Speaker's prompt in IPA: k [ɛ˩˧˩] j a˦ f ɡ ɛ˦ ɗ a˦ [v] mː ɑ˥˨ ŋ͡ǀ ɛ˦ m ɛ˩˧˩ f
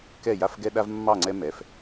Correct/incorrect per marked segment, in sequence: incorrect, correct

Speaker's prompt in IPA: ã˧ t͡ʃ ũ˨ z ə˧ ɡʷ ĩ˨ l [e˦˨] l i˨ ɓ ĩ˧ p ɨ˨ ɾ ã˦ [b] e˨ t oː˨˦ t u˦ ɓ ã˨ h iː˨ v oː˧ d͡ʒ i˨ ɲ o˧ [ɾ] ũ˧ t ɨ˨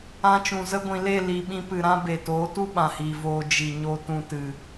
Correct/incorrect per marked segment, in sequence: correct, correct, incorrect

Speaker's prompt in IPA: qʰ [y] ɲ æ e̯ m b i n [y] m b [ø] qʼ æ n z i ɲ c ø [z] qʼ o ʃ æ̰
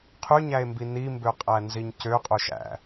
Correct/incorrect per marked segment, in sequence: correct, incorrect, correct, incorrect

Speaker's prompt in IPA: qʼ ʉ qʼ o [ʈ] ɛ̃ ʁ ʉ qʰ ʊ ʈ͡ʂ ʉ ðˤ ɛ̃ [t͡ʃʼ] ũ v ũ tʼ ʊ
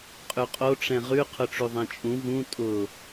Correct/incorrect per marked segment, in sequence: incorrect, correct

